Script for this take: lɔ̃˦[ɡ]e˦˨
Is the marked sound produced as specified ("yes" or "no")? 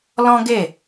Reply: yes